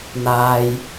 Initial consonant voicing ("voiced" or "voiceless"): voiced